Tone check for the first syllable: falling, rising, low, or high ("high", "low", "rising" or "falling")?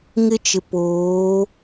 high